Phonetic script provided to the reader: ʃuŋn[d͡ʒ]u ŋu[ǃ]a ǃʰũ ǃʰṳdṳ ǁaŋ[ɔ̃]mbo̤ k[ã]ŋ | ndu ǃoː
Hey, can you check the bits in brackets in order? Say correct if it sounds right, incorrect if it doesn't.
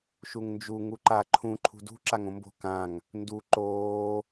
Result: correct, correct, incorrect, correct

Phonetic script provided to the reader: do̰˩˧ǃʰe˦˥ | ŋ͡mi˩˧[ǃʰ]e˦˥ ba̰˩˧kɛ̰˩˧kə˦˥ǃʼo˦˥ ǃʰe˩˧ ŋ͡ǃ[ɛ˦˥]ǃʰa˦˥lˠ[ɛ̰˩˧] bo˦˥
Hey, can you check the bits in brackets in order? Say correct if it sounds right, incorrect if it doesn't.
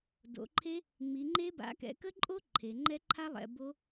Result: incorrect, correct, correct

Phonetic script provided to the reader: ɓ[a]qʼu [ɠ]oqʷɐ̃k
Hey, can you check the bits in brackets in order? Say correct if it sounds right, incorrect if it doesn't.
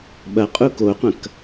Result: incorrect, incorrect

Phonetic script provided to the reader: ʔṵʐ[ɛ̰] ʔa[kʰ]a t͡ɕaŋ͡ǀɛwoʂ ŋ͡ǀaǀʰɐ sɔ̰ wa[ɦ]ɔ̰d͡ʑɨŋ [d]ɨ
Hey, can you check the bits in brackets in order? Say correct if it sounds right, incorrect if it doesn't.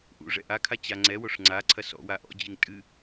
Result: correct, correct, incorrect, incorrect

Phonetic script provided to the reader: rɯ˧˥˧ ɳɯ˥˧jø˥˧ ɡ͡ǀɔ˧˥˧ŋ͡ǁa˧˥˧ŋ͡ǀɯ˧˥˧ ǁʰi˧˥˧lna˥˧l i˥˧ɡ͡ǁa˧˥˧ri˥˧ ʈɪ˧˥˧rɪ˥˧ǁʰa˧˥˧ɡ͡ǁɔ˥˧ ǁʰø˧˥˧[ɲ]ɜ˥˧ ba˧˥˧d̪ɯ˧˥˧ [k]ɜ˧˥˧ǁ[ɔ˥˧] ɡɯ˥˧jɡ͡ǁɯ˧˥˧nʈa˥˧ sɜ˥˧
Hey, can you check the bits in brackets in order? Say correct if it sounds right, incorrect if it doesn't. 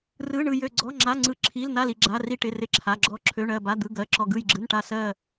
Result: incorrect, incorrect, correct

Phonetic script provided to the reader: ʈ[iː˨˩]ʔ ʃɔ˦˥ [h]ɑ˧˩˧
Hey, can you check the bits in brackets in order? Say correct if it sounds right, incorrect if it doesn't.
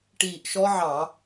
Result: correct, incorrect

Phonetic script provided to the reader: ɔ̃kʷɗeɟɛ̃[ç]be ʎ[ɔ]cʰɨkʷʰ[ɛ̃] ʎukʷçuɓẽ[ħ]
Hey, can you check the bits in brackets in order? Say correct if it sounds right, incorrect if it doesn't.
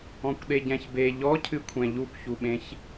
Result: correct, correct, correct, incorrect

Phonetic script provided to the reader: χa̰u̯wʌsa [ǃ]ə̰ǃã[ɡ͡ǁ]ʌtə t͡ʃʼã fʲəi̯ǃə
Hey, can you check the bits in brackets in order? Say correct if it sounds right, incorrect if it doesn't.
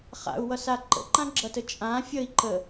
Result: correct, correct

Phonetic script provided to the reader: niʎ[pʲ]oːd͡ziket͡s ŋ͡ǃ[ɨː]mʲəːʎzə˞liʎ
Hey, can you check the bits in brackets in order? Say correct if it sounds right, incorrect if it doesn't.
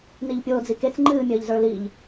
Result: correct, correct

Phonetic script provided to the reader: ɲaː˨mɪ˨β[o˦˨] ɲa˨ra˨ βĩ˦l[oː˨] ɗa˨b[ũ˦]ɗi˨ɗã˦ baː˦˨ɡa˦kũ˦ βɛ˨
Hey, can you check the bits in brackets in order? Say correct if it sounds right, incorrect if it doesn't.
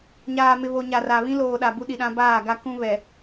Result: incorrect, correct, incorrect

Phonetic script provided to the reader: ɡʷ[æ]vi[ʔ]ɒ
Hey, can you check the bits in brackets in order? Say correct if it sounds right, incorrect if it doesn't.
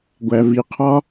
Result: correct, incorrect

